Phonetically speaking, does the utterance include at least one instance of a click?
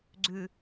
yes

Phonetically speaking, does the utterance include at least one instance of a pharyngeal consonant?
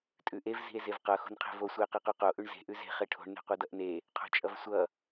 no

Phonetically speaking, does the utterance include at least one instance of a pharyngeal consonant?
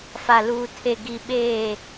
no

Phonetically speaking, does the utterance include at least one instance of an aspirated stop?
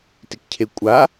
yes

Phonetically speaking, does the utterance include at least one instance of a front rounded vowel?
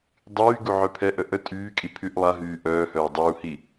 yes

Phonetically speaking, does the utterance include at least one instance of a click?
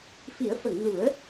no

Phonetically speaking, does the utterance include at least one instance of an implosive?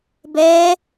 no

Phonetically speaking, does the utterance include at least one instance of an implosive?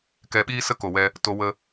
yes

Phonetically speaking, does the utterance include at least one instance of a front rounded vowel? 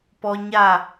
no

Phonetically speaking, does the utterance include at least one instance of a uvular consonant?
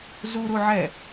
no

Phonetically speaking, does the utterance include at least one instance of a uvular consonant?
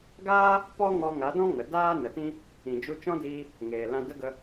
no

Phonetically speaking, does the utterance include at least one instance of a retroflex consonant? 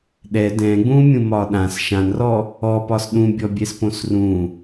no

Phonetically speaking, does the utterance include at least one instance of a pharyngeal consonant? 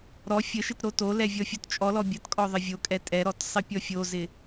no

